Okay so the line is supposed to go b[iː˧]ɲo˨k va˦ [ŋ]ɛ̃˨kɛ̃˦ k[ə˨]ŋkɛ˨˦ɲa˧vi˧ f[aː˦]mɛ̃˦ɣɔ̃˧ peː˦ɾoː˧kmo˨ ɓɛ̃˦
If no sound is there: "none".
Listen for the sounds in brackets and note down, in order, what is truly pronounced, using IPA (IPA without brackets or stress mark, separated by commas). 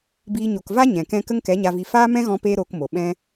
iː˧, ɲ, ə˦, aː˦